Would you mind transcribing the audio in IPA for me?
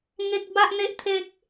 ŋ e˦ k̚ b a˦ ʔ n̪ e˦ ʔ t̪ʰ e˦ k̚

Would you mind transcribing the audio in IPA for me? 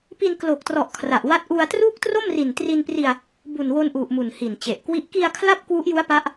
p i˧ n k l o˨˩ k̚ t r ɔ˨˩ ʔ kʰ r a˨˩ ʔ w a˦˥ t̚ ʔ u˧ a̯ t r uː˥˩ k̚ t r o˥˩ m r i˨˩ n t r i˧ n p r i˧ a̯ | b u˨˩ n w o˧ n ʔ u˨˩ ʔ m u˨˩ n h i˨˩ n t͡ɕ e˨˩ ʔ k w i˥˩ ʔ k i˧ a̯ kʰ l a˥˩ p̚ k w u˦˥ ʔ j u˦˥ a̯ p a˦˥ ʔ

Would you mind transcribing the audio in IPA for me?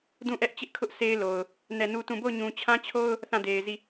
d ũ˦˨ ʔ ɛ˦ ʔ t͡ɕ ɪ˦ ʔ kʰ ʊ˦ ʔ s e˦ ɪ̯ l o˨ ʊ̯ | n ɛ˦˨ n u˦ t ũ˦˨ b o˦˨ ʊ̯ ɲ ũ˨ t͡ɕʰ ã˦ t͡ɕʰ o˦ ʊ̯ | θ ã˦˨ d e˨ ɪ̯ z i˦˨

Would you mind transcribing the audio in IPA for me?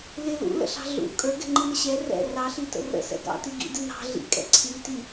l ɪ l ṵ l ə̰ ɬ ɑ̤ ɮ ṵ kʼ ə˞ ɡ ɛ̤ ŋ͡ǃ i n ə ɕ ɛ r ɛ̰ r ɑ ɬ i t ə̰ r ə̰ s ɛ̰ ɡ ɑ̰ t i ɡ ḭ d ɪ n ɑ̤ ɮ ḭ kʼ ɛ̰ ǀʰ i t i

